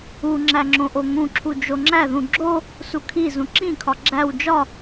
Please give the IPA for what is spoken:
uŋ͡ǁæŋ͡ǁõʔo ŋũǁʰu d͡ʒoŋ͡ǁæðũ ɡ͡ǁo | sukʰi zũǁĩkʰɒ ɡ͡ǁæw d͡ʒɒ

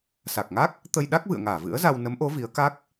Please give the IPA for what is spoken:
sa˨˩k̚ŋa˦˥k̚ | t̪ə˧jɗa˦˥k̚vɨ̰˧˨ə̯ŋaː˧˩ vɨ̰˧˥ə̯za˧w nə˨˦mʔo˨˦ vi˨˦ə̯ka˦˥k̚

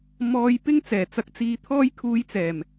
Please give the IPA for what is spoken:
mɔː˧jpɪ˥ŋ t͡sɛː˨˩t͡sɐ˧k̚t͡siː˧ t̪ʰɔː˥jkʰuː˧j t͡sɛː˨˩m

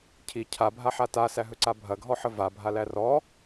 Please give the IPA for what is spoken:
cʰi cʰabʱaħa tasæɦɵǀa bʱɐɡʱɔħə vabʱalæ rɔ

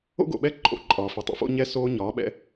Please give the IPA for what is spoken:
o̰˦ɡo̰˨ɓɛ˦ ǃʼo̰˨ ǃʼɒː˨fi˨ tˤo̰˨fo̰˦ɲɛː˦ soː˦ɲɒː˨˦ɓɛ̰˦

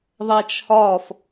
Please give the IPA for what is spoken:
ðˤæt͡ʃhɒf

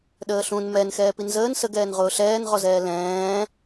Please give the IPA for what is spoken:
ɗəːɬũn mɛn xɛːpinzəːn səɡɛːn ʁʊːɬɛːnʁɔzɛː lɛ̃ː

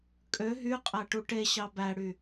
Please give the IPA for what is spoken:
kʼø ɦyqʼæʈu ʈeɕɑ bæɽy

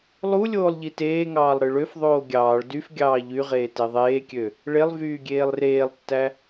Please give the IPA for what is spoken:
lˠu lʲoːlˠʎiteːŋɑːlˠ ɾɯɭøfðˤoː ɡʲɑːɭ dyf ɡʲɑːʎyʁeː teðˤeːkʲø | ɭelˠ vyːɡʲeːlˠreːlˠtːæ

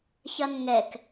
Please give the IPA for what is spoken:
çɐnŋɛk

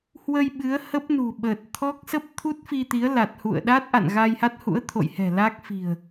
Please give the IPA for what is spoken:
hwə˧j ɓɨ˨˦ə̯hə˦˥p̚nṳ˨˩ ɓəː˨˩t̚t̪ʰɔ˦˥k̚ sə˦˥p̚t̪ʰu˦˥t̚fi˧t̪i˨˦ə̯ la˨˩t̚hṵ˧˨ə̯ɗa˦˥t̚ ʔa̰˧˨nɣa˧jha˦˥t̚hṵ˧˥ə̯ t̪ʰo̰˧˨jhɛ̤˨˩ la˦˥k̚ fi̤˨˩ə̯

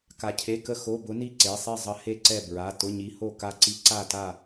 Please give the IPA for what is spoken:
ka˧cʰe˧˥˧kə˥˨ xo˧˥˧bʊ˧˥ni˥˨ ǀe˩˧˩sˤe˥˨zˤə˧˥ he˥˨ǀɛ˥˨ bɹa˩˧˩ tʊ˧˥˧ɲi˧˥ho˥˨ ka˥˨ǀi˥˨ ǀa˥˨ta˥˨

